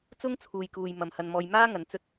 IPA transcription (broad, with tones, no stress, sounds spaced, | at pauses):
t͡s ʊ˥ ŋ t͡sʰ uː˨ j k uː˨ j m ɐ˨ m h ɐ˧ n m ɔː˧ j m aː˥ ŋ ɐ˨˧ n t͡s ɵ˥ t̚